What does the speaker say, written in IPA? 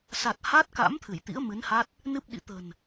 s a˨˩ t̚ h a˦˥ t̚ k a̰˧˥ m t̪ʰ ɨ˧˩ j t̪ ḭ˧˥ ə̯ m ɨ˨˦ n h a˦˥ t̚ | n ɨ˦˥ p̚ ɗ ḭ˧˨ t̪ ə̤˨˩ n

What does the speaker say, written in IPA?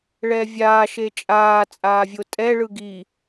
ɭ ɛː vʲ aː ʃ e t͡ʃʼ aː t͡sʼ aː vʲ o tʼ ɛ ɭ ɯ ɡ i

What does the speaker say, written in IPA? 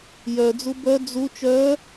j œ d͡z u b œ d͡z u t͡ʃ œ

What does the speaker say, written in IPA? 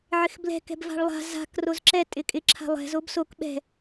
ʕ ɪ x b l ɛ̤ k ɛ̤ b v a̤ ɭ lˠ a̤ z a̤ k r o z ǁ ɛ tʼ ɪ kʼ ɪ ǁʰ a̤ lˠ ɛ̤ z o b s o k ɓ ɛ̤

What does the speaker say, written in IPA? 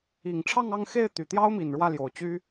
i˨˩ ŋ ʈ͡ʂʰ ɑ˥˧ ŋ ɑ˥˧ ŋ x e˥˩ ɪ̯ t̪ y˨˩ t̪ j ɑ˥ ʊ̯ m i˨˩ n ɻ w ä˥˩ l j o˨˩ ʊ̯ t͡ɕ y˥

